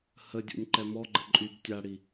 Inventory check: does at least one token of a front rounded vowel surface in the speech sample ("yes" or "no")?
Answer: yes